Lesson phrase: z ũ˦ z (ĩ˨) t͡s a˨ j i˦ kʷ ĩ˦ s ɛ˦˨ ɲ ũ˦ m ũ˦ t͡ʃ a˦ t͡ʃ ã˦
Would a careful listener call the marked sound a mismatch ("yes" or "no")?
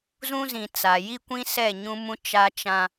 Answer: no